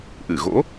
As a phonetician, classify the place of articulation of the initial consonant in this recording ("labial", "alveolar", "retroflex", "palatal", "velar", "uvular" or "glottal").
glottal